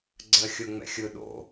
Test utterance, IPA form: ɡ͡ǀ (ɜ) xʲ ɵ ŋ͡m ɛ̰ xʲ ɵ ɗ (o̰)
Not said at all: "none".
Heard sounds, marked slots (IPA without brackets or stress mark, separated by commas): ɜ, o̰